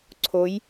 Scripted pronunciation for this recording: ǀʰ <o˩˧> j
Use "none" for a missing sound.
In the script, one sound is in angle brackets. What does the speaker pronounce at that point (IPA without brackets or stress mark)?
o˧˥